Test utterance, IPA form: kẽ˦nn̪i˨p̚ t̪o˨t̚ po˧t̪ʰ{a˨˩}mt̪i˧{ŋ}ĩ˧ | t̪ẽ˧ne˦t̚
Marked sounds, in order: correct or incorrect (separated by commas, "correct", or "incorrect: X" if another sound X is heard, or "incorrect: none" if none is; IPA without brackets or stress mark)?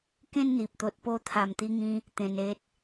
correct, correct